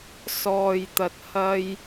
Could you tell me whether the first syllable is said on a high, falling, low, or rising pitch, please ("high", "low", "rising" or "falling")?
low